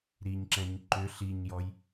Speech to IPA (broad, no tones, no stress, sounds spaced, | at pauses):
ɾ i ɲ ǁ ɛ̃ ɲ ǃ ʏ ɬ i ɲ j ɔ j